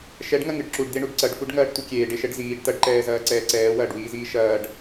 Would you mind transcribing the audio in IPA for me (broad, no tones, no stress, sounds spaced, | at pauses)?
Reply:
ʃ ɛ ɖ ŋ ɐ ŋ ɨ ɖ ǁ u ɖ d̪ e ɳ u ɖ ǀ ɐ ɖ f u ɖ ŋ ɐː ɖ tʷ ɨ kʲ eː ɖ e ʃ ɛ ɖ z iː ɖ t ɐ ɖ ǃ ɛː z ɐː ǀ ɛː ǀ ɛː w ɐː ɖ w iː z iː ʃ ɐː ɖ